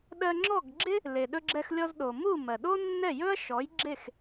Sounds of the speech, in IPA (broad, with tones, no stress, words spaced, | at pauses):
ɗɜ˧ŋ͡ǁɔ˥˩ɡ ɡ͡ǁɪ˥ | le˩ɗɵ˧ɡ͡ǁɛ˧xlʲɔ˧z ɗo˩mu˥˩ mɜ˩ɗo˥ nːɛ˥˩ jɵ˥ɐ̯ʃɔ˩˥j ɡ͡ǁe˥˩x